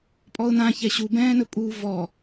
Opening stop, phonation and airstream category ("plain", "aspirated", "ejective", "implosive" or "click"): ejective